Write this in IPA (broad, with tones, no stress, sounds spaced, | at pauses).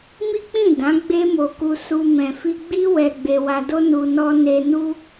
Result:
m i˦ k͡p ĩ˦˨ d ã˨˦ ɡ͡b e˦ m o˧ k u˧ s u˧ m ɛ̃˨ f i˧ ɡ͡b i˦ w ɛ˧ ɡ͡b e˧ w a˧ d o˦ n u˧ n ɔ˦ n e˦ n u˦